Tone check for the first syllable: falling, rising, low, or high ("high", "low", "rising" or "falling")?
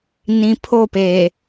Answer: low